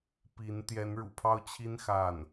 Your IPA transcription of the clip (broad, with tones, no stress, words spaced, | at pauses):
pi˧˥n t̪jɛ˧˥nɻṵ˨˩pʰɑ˥˩ʊ̯t͡ɕʰi˥n xa˥˩n